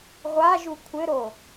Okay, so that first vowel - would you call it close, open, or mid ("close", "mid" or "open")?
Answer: open